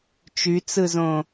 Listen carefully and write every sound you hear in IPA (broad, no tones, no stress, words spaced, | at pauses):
t͡ʃyt͡sɯzõ